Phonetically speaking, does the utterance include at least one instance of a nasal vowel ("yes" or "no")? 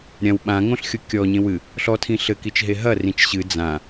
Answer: yes